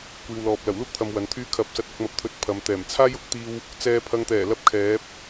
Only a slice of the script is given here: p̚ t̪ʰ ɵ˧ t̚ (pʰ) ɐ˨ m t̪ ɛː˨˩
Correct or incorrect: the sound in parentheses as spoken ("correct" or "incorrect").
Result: correct